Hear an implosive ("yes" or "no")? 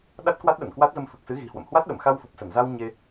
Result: yes